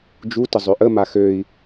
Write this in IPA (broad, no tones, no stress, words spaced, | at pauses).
d͡ʒutə zˤøʔəma xøi̯